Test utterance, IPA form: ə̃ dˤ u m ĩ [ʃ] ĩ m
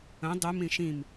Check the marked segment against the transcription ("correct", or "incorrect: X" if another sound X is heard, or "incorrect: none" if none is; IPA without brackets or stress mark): correct